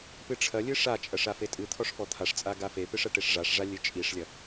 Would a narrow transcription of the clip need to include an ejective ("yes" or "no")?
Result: yes